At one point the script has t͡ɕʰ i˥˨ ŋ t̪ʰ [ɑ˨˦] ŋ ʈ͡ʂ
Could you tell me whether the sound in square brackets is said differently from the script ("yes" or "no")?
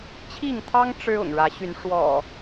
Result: yes